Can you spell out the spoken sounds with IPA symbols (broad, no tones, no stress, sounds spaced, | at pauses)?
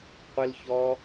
qʷ ɪ l ç ɔ